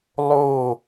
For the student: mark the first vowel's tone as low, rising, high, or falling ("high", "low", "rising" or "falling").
falling